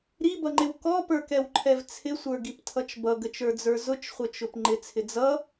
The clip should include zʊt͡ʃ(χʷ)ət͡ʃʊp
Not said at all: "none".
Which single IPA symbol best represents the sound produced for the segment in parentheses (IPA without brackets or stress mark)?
χʷ